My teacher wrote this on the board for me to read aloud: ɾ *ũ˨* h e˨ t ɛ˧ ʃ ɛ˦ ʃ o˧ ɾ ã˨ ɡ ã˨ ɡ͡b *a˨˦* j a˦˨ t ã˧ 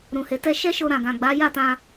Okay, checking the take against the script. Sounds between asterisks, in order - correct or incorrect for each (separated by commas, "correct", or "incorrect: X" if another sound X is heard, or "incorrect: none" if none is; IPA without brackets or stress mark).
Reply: correct, correct